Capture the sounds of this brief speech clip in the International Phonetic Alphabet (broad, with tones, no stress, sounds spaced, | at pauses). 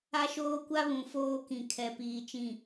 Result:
a˦ ʃ oː˦ kʷ a˦ β ũ˨ f oː˦ k ĩ˨ kʰ ɛ˨ p iː˨ t͡ʃ ĩ˨